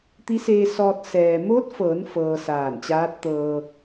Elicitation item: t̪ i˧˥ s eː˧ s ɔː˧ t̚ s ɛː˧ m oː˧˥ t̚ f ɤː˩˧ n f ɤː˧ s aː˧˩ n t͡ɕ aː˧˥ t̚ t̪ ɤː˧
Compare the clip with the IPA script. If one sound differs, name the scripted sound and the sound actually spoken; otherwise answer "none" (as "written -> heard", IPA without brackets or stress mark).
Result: ɛː˧ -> ɛː˩